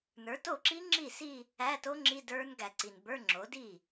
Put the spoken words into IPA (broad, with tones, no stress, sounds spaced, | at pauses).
n ə˞˩˥ t o˥˩ ǁ i˦˥ ŋ͡ǁ i˥˩ s i˥˧ | æ˧˥˧ t o˦˥ ŋ͡ǁ i˧˥˧ d ə˞˦˥ n ɡ æ˨ ǀ i˨ n b ə˞˧˥˧ ŋ͡ǁ o˩˥ d i˥˩